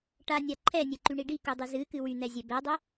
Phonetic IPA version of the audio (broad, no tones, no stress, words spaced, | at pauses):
ʈanʲa ǃʰɛnʲɛǃyɳi ɖikudˤɨ zɨkɨ wyn̪ɛzʲɛ bɛdˤə